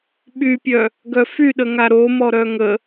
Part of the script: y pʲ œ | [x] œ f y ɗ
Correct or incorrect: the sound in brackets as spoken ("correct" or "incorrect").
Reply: incorrect